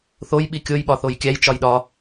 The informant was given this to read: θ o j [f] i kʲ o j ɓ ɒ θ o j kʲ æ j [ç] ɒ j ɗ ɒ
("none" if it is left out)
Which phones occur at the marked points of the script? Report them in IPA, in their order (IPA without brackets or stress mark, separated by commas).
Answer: ɓ, t͡ʃ